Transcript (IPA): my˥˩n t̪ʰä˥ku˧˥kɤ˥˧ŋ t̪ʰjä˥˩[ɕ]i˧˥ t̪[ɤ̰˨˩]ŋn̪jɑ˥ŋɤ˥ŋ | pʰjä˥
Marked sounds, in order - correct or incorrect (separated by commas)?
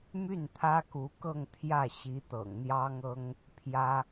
correct, correct